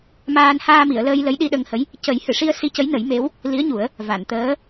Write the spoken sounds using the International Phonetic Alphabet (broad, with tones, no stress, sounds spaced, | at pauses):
m aː˧ n h aː˧ m i˨˩˨ ə̯ l əː˧ j l ə˧˥ j ɗ i˧ ɗ ə˧ ŋ h ə˧˥ j | c ə˨˩˦ j h ɨ˨˩˨ ʂ i˧ ə̯ s i˧ c ə˧˥ j n ə˨˩˦ j m e˧˥ w | l i˧˥ ə̯ ɲ u˨˩˦ ə̯ | v a˨˩˨ n t̪ əː˧˥